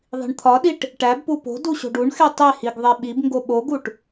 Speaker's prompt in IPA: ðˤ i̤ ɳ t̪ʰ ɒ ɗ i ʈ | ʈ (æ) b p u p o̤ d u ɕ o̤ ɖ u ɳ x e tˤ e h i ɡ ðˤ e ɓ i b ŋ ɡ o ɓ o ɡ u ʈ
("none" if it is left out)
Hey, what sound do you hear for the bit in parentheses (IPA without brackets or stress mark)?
æ